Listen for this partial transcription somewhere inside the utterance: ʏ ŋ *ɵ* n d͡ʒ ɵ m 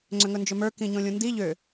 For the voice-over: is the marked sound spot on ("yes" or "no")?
yes